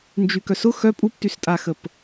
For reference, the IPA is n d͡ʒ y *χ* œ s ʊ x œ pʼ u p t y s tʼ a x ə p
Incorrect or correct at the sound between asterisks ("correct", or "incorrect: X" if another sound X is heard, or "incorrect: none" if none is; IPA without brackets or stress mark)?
incorrect: k